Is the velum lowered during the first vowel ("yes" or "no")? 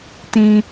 yes